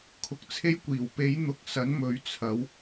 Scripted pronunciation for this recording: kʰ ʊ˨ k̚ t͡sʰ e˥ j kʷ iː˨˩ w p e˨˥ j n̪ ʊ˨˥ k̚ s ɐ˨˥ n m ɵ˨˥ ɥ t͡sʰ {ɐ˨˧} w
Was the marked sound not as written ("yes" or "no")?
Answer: yes